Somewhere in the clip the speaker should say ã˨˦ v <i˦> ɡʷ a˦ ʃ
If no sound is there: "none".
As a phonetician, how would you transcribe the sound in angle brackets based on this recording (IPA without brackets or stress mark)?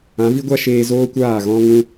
i˦